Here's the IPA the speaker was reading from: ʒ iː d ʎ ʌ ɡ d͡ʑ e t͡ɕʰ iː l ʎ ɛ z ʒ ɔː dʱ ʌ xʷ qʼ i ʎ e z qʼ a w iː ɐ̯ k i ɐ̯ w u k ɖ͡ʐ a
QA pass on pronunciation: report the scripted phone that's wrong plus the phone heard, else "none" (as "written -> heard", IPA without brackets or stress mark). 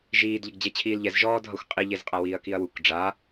none